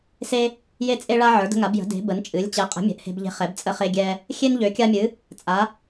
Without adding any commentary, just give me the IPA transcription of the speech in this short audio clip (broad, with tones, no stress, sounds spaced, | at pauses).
s e˦ | j e˦ t͡sʼ e˦ ɭ a˦ ʕ ə˞˩˥ d ə̤˦ ŋ a˩˥ b j ə̤˩˥ d e̤˩˥ b ə˩˥ n t͡ʃʼ ɨ˩˥ lʲ t͡ɕ ɛ˩˥ qʼ ə̤˩˥ mʲ ɛ̤˩˥ ʔ h e̤˦ b ʎ e̤˦ χ ɛ˩˥ b t͡sʼ ə˦ χ e˦ ɡʲ ɛ˦ | xʲ e˦ n ʎ ø˩˥ kʲ a˦ mʲ ɨ˩˥ | t͡sʼ a˩˥